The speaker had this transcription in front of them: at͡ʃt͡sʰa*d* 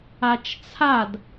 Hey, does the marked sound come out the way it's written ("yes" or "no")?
yes